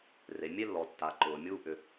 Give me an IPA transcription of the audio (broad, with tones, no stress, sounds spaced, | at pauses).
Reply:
r e˩ mʲ e˥ lː ɔ˩ tː a˩ ǃ ʊː˩ mʲ uː˥ ʔ ʏ˩